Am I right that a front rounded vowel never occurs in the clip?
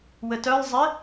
no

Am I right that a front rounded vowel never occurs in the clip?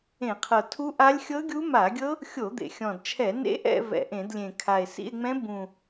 yes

